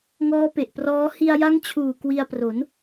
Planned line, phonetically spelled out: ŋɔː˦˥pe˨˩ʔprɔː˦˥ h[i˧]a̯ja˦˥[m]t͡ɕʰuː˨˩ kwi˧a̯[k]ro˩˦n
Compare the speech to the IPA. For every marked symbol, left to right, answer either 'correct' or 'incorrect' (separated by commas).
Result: correct, incorrect, incorrect